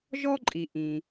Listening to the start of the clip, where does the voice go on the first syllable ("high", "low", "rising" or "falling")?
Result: high